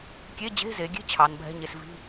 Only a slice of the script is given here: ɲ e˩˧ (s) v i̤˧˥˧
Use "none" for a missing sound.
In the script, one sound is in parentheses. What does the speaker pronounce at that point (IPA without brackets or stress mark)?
s